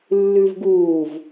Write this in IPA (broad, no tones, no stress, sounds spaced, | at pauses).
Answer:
lː ʉ v ɡ uː v